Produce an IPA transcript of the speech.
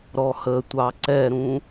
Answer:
ɾ ɔ h ə tʷ ɑ ǀ ɛ ɾ ũ

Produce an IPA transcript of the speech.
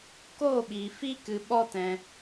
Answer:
k oː˦˨ ɓ iː˨ f i˦ k ɨ˧ ɓ ɔ˦ t ɛ̃˧

